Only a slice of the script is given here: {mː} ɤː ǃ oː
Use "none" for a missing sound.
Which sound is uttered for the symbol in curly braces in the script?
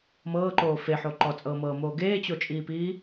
m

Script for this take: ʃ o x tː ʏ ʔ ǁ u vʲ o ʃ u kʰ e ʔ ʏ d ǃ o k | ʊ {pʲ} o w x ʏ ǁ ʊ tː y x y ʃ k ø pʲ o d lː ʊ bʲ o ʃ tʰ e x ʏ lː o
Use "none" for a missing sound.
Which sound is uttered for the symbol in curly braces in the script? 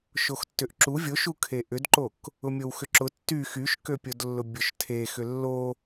mʲ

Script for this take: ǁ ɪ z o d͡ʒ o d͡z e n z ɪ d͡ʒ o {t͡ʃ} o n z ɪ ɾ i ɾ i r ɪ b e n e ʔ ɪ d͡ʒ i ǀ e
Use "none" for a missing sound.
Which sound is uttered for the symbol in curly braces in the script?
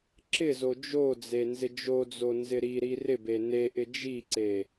d͡z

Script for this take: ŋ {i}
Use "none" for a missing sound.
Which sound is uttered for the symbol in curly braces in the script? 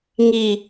i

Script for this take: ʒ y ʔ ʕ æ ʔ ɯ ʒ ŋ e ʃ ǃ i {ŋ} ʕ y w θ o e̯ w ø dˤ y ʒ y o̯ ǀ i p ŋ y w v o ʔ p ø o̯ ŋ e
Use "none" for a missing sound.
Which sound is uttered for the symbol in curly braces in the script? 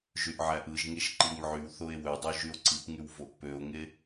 ŋ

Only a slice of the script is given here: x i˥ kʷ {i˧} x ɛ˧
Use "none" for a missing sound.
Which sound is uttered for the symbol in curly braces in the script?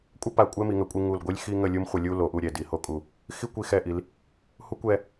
i˧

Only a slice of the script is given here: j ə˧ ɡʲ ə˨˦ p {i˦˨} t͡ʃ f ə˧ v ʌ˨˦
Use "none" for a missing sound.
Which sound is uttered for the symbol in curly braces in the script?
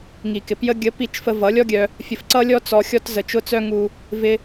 i˦˨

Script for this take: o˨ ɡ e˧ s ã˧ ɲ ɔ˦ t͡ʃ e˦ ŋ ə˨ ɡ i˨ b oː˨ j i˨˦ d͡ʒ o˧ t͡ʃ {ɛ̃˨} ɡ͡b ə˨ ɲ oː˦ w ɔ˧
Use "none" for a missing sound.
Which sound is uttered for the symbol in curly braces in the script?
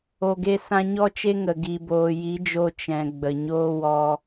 ɛ̃˨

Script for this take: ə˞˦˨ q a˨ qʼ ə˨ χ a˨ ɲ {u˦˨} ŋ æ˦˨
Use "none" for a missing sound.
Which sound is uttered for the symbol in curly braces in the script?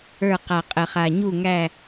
u˦˨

